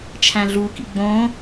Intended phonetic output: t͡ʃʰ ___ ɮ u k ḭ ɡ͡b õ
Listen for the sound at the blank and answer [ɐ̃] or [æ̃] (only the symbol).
æ̃